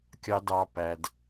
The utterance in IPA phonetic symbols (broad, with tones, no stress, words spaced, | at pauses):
kʲɑ˧dɑ˧ pæ˧d